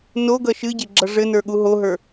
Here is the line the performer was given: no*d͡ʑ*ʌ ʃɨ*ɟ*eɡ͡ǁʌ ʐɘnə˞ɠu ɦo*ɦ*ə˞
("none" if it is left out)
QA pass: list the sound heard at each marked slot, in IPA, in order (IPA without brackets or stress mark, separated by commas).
ɡ, ɟ, ɦ